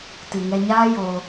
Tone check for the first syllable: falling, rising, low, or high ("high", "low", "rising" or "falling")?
low